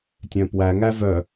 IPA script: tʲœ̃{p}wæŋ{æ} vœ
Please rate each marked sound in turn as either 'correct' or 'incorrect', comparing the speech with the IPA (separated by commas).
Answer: correct, correct